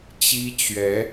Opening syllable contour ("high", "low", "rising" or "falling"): high